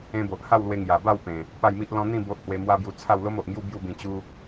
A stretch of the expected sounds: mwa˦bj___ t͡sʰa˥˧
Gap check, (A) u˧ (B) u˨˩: A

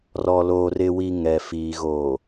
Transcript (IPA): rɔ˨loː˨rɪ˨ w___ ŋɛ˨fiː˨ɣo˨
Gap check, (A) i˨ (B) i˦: A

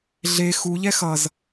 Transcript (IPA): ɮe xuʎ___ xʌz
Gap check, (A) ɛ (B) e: A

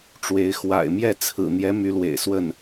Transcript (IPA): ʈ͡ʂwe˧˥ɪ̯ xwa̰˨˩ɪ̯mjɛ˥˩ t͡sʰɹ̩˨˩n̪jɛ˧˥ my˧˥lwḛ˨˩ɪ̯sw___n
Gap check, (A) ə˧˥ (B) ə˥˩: B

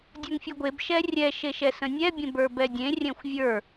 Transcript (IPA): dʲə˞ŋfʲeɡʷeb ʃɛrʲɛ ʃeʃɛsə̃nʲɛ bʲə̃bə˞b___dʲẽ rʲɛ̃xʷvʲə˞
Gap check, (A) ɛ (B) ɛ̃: A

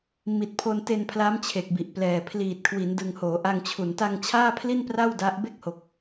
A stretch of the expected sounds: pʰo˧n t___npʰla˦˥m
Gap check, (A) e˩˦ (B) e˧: B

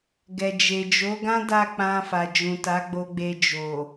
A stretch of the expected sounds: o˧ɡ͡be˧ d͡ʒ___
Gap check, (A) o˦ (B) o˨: B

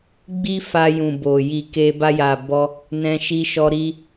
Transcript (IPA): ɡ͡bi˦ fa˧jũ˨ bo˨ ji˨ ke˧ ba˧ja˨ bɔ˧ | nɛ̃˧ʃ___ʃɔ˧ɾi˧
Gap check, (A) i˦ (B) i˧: B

